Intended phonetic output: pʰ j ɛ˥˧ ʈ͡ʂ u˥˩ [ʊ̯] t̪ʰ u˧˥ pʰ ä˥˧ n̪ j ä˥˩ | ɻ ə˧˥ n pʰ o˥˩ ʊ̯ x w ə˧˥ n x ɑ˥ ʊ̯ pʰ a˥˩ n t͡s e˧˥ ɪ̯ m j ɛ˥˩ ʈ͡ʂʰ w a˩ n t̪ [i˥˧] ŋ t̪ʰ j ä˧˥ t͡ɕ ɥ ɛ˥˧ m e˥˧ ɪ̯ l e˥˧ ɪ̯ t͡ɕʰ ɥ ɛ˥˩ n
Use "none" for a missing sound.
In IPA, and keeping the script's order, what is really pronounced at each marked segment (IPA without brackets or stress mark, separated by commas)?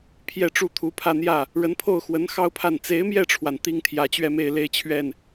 none, i˥